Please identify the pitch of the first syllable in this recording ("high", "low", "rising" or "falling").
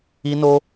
high